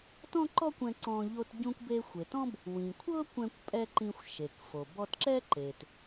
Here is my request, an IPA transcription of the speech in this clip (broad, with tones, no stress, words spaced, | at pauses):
tɔ̃˥ǃɔ˥kʷɛ̃˧ ǀɔ̃˧ ʎo˧t ɟũ˧kʷbe˧xʷe˩tɔ̃˥b | wĩ˩ kʷʰɤ˥ kʷɛ̃˧kʷpʼɛ˧ ǃĩ˧xʷ ʃe˩kfo˩ bɔ˧tǁɛ˥ ǃe˩t